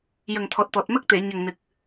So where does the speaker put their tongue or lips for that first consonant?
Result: palate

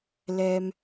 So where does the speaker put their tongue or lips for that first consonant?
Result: tongue tip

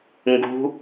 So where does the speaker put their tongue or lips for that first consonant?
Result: velum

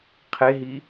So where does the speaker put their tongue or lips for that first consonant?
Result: uvula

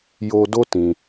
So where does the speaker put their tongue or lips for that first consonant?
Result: palate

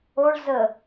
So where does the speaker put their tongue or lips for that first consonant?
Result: retroflex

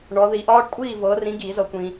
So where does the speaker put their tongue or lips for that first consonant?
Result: retroflex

